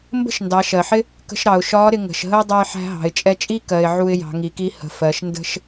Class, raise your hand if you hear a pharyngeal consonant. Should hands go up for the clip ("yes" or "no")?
yes